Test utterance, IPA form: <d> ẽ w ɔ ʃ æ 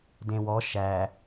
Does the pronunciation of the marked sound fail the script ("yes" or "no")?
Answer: no